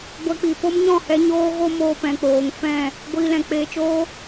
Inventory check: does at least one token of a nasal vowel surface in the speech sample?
yes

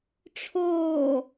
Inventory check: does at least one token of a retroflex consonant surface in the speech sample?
yes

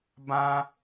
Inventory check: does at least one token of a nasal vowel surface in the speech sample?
yes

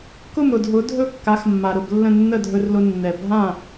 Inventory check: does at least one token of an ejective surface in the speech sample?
no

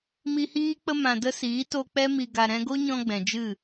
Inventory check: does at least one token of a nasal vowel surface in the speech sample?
yes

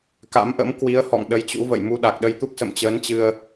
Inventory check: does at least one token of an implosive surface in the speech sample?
yes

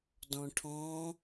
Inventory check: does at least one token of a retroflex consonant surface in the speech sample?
yes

